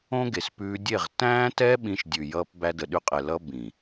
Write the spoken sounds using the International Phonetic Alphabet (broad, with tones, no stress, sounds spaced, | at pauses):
õ˦ ɡ e˨ s p ʉː˧ dʲ e˦˨ ʁ t æ̃ː˦ t ɛ˦ ɓ ĩ˧ ʃ dʲ ʉ˨ j ʌː˧ p b æ˧ d ə˨ ɗ ʉ˧ qʼ ɛ˨ l ʌ˧ b ĩ˨